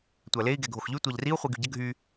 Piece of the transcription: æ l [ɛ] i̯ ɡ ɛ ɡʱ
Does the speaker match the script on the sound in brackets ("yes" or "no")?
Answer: no